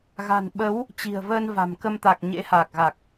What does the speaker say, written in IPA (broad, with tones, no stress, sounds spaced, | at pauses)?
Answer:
ɣ a̤˨˩ n ɓ ə˨˦ w | t͡ɕ i̤˨˩ ə̯ v əː˧ n v a̤˨˩ m k ə˧ m t̪ a˨˩ k̚ ɲ ḛ˧˥ h aː˨˩ k̚ ɣ a˨˩ k̚